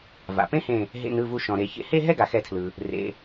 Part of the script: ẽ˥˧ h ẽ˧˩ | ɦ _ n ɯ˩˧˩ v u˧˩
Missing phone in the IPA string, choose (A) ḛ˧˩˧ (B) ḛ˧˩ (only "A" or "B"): B